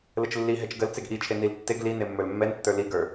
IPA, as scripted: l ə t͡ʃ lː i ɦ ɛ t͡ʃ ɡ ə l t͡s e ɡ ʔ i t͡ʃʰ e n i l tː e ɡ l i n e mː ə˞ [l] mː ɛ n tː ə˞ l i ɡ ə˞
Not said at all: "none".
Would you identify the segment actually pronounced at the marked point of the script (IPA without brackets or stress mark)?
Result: l